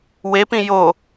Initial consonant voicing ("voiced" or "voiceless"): voiced